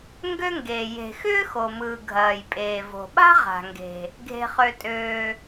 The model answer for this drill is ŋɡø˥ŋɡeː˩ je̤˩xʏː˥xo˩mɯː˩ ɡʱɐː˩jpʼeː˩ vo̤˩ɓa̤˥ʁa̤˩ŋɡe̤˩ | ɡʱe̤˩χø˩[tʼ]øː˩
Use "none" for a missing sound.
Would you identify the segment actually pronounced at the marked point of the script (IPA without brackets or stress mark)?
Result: tʼ